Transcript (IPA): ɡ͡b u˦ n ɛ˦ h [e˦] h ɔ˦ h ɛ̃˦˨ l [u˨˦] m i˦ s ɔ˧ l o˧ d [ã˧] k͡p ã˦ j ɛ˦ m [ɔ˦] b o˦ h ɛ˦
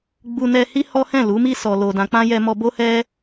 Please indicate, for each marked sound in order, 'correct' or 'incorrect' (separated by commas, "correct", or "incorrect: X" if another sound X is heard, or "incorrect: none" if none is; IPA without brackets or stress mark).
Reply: incorrect: i˦, correct, correct, correct